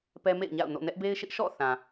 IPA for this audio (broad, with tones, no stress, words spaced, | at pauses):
pɛ˦mḛ˦˨ɪ̯ɲa̰˦˨ʊ̯no̰˦˨ nɛ˦ʔbe˦ɪ̯ʃɪ˦ʔ ʃɔ̰˦˨ θã˨